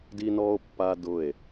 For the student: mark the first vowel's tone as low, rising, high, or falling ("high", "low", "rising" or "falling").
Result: high